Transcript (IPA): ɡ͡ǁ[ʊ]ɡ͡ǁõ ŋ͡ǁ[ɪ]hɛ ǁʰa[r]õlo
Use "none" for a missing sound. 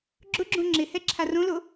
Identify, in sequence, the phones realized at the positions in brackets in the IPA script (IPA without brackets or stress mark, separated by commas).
ʊ, ɪ, r